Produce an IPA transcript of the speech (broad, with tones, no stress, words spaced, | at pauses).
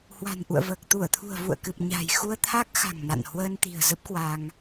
hwa̤˨˩nʔṵ˧˨ə̯vəː˨˩k̚ t̪u˧˩ə̯t̪ʰṳ˨˩ə̯vṵ˧˨ə̯kɨ˨˩p̚ ɲa̤˨˩jxu˧ə̯t̪ʰa˦˥k̚ xa̤˨˩ŋna̰˧˨n hwəː˧nt̪i̤˨˩ə̯zə˦˥p̚kwa˧ŋ